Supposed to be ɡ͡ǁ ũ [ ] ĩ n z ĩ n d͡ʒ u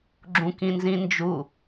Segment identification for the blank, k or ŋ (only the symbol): k